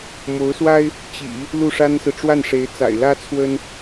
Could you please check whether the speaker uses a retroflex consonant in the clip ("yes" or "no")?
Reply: yes